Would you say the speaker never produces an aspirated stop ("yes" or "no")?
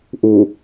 yes